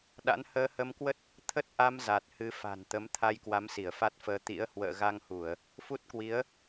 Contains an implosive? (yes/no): yes